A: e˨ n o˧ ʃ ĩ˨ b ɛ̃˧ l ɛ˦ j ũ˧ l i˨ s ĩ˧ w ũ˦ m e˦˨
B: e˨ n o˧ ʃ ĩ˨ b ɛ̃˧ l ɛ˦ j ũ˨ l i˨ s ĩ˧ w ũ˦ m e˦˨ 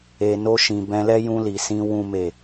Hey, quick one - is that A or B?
A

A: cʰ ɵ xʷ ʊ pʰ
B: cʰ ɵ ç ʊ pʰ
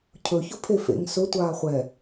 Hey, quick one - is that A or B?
B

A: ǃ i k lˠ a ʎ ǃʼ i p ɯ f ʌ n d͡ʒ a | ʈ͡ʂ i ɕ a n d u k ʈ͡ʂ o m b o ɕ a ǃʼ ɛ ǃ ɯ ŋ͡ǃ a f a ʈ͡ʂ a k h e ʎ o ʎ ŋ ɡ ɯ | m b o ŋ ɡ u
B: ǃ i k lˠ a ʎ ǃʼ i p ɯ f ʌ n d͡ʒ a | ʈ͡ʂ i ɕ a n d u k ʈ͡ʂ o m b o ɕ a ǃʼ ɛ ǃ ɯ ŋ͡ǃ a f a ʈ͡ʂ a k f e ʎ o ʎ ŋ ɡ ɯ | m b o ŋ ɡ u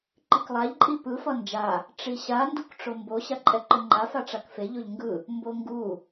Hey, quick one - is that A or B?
B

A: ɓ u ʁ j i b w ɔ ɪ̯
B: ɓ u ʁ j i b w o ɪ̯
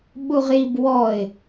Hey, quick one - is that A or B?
A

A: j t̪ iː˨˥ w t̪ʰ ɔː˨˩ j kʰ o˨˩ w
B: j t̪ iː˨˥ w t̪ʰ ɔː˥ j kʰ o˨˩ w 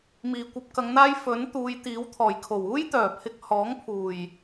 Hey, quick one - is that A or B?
A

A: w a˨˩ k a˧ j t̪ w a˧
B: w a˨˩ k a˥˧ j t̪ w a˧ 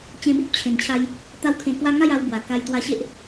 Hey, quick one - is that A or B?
A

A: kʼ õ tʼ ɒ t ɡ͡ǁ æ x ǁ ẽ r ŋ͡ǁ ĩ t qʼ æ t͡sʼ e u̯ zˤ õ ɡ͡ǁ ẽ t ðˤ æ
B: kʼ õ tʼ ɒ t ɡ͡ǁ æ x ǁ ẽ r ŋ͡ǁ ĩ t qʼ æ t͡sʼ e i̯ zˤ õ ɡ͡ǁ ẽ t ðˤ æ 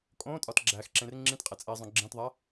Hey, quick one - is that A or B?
B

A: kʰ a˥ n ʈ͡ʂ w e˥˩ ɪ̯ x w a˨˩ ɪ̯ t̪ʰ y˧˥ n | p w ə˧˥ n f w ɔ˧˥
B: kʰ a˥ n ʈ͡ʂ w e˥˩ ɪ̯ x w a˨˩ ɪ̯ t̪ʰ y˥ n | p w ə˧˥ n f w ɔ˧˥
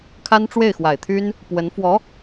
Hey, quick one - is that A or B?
B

